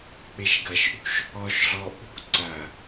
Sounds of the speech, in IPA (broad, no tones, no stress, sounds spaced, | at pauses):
k͡p e ʃ ɡ ɐ ʃ ʔ ṳ ʃ | ɔ ʃ ɮ ɔ ʔ ṳ ǀ ɐ